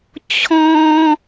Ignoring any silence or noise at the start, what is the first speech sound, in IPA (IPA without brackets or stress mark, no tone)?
t͡ɕʰ